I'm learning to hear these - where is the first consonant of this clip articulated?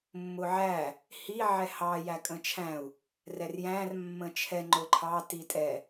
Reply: lips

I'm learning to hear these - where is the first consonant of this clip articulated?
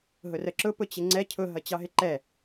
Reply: throat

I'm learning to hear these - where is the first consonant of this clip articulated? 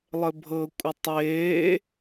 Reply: tongue tip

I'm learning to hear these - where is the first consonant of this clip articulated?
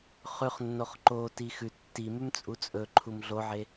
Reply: uvula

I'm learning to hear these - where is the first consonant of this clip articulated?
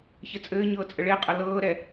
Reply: palate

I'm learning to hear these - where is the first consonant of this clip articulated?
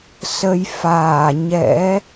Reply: tongue tip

